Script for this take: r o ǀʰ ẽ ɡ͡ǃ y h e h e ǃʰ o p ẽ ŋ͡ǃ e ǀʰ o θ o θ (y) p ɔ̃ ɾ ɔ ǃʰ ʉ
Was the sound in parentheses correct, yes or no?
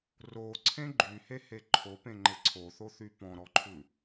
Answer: yes